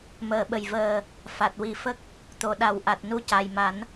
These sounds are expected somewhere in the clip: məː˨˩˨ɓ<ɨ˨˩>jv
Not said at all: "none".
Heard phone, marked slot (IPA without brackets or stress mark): ə˨˩